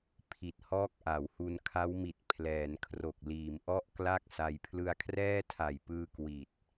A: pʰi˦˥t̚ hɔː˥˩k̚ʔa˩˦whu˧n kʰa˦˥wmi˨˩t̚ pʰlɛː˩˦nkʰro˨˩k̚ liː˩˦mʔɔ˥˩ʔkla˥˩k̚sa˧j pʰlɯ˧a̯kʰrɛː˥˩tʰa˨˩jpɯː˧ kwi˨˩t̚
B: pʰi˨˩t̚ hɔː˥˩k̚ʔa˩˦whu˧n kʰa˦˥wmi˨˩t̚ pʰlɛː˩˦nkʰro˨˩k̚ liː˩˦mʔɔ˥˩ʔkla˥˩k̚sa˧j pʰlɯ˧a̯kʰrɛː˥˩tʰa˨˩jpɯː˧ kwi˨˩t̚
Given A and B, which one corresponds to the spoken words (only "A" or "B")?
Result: B